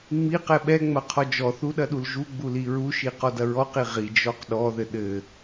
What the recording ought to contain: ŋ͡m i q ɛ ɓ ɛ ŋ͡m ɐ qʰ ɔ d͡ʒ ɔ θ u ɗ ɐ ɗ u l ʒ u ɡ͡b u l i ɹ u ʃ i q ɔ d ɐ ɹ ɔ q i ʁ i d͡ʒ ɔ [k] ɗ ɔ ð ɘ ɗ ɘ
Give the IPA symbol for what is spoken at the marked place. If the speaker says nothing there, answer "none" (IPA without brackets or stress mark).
q